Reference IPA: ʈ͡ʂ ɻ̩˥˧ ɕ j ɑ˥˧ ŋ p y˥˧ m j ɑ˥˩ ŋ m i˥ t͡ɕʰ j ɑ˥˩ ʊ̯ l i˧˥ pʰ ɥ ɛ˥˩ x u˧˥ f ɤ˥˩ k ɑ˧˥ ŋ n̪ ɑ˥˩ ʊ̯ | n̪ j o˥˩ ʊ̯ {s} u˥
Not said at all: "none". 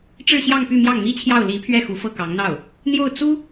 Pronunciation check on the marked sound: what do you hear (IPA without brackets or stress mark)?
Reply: t͡s